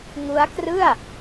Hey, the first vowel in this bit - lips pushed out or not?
yes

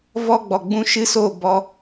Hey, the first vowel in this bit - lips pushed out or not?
yes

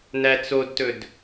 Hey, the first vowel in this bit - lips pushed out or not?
no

